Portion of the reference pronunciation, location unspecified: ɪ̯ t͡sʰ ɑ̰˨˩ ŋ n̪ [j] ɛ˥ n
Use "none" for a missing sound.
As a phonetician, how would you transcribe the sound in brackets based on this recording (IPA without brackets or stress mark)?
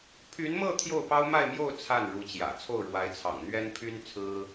ɥ